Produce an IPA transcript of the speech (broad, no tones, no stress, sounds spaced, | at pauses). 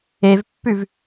e v pː ʉ v